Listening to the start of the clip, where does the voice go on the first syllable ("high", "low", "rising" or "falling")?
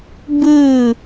falling